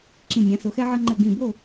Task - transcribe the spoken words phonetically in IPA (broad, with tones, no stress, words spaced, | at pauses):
ǁĩ˧˩nʲã˨˦so˨˦xɛ˦ ʕʌ˦ ŋ͡ǃɘ˧˩ɡĩ˧˩bo˥˨